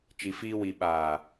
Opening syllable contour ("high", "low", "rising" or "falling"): low